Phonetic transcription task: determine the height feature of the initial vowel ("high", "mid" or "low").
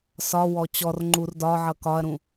low